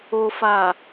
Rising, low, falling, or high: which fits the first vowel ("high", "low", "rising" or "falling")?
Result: low